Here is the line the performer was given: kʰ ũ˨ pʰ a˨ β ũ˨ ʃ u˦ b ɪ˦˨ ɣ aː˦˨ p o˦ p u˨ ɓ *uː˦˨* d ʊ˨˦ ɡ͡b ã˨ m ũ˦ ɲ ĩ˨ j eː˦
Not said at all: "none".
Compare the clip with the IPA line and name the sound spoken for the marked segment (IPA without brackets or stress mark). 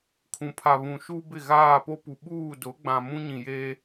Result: uː˦˨